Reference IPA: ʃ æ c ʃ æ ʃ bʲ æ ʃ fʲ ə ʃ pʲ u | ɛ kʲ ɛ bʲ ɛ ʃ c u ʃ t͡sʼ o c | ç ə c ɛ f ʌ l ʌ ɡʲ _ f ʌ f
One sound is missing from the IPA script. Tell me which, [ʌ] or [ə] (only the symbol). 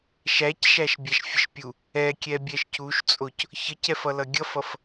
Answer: ʌ